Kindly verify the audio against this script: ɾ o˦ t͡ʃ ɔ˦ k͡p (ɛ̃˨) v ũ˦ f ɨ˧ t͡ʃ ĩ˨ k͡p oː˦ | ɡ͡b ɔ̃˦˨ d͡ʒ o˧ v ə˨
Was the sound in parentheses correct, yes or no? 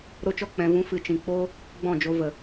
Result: no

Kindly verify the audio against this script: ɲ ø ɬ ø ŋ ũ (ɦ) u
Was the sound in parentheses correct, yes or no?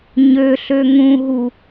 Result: yes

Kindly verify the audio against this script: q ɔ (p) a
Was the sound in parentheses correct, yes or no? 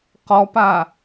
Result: yes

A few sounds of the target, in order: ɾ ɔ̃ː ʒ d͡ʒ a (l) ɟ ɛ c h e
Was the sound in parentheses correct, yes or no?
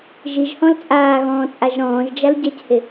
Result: yes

